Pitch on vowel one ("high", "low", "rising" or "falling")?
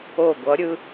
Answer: falling